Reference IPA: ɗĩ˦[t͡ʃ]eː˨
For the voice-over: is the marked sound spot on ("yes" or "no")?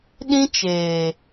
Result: yes